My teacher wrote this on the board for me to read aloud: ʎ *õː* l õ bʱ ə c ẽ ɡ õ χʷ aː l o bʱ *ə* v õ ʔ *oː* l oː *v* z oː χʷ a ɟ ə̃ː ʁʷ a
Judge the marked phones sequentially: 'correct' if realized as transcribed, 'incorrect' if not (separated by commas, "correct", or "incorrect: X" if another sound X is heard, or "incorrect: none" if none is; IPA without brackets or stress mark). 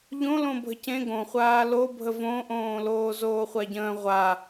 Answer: incorrect: õ, correct, incorrect: õː, incorrect: none